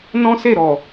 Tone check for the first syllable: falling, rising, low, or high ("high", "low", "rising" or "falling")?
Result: high